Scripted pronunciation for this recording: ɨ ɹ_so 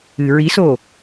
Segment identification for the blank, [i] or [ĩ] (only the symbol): i